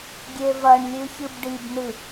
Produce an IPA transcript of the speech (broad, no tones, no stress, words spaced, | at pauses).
ɡʲevɐɳlʲʉ çɨbɖibnɨ